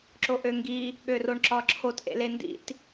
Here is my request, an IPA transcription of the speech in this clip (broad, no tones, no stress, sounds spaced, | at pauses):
ǁ o ʔ ø ŋ ɡ i | ɠ ø r o ɳ ǁ ɒ ǁʰ o t ʔ ḛ l e n d ḭ t